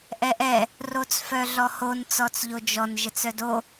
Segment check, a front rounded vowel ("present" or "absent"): present